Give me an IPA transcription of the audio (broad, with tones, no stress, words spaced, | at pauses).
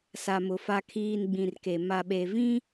sa˨mʊ˨ fa˨kʰiː˨n ɡ͡bĩ˨rke˨ ma˨ɓe˨vĩ˦